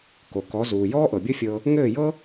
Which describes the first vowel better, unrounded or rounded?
rounded